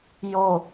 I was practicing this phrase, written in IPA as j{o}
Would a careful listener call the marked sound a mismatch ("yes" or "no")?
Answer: no